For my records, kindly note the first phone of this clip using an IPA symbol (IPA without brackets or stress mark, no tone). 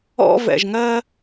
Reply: ɔ̰